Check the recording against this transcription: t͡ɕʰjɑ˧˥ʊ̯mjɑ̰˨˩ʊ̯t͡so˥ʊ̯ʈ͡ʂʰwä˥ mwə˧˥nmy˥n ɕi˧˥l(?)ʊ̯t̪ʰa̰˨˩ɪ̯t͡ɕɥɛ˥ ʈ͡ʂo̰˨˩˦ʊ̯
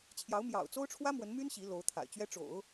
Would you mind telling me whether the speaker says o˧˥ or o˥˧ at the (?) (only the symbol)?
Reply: o˧˥